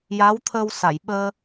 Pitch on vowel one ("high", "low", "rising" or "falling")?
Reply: rising